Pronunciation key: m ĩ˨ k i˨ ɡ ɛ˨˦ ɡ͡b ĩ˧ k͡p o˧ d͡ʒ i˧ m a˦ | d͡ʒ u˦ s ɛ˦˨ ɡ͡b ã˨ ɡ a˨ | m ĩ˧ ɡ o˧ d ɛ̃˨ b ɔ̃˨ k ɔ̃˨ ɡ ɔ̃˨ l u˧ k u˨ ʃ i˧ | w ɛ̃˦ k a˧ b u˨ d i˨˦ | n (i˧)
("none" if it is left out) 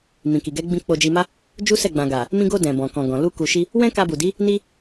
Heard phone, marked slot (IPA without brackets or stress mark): i˦